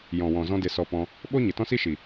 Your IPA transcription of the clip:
jɔ̃˨wɔ̃˨zɔ̃˧ de˧sɔ˧pɔ̃˧ | ɓoː˦ɲe˨tɔ̃˦si˦ ʃi˨

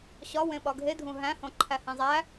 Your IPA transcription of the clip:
ɕɒ wẽɓɒɡʱedʱũ ɦæ̃hõ ǃʰæhĩzˤæ

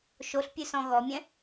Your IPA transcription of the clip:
ʃoɬpʲʉsɔ̃ ɣɔmʲɛ̃

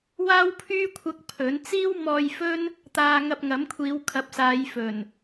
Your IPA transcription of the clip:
waː˥wpʰyː˥kʷʰɐ˧k̚ pʰɵ˨˥n t͡siː˥wmɔː˧jfɵ˥n | t̪aː˧ŋɐ˧p̚ŋɐ˨˥mkʷʰiː˨˧w kʰɐ˨˥p̚saː˨˧jfɵ˨˩n

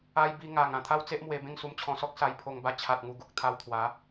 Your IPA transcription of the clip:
a˧j bi˧ŋa˨˩ŋ ã˨˩t̪ʰa˦wt͡se˦ʔmwe˧ bẽ˥˧ŋsu˧mt͡ɕʰɔ̃˧sɔ˦k̚ sa˧jpʰo˧ŋba˧ t͡ɕʰa˨t̚ŋu˨˩ɡu˨k̚ t̪ʰa˧wt̪ʰwa˨˦

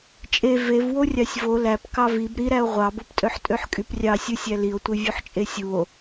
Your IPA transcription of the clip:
t͡ʃʼe vev worʲɑsʲvo læp kɑvib ɾiɾæo̯ ʁʷɑboptʼøħ tʼøħkʼyprʲɑsʲɯ sʲælio̯tʷe vʲuħt͡ʃʼesʲuo̯

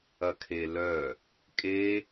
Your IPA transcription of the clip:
ɐkʰelœ | kʼe

